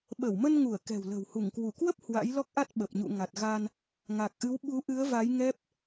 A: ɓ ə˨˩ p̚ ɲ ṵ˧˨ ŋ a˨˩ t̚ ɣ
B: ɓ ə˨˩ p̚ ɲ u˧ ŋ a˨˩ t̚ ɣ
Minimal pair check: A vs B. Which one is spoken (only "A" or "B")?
A